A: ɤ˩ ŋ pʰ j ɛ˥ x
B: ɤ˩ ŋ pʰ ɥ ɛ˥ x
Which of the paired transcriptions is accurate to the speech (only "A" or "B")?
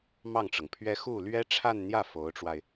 B